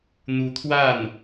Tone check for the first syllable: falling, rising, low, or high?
rising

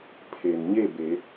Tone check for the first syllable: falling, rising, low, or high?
low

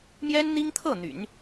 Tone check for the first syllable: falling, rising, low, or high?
high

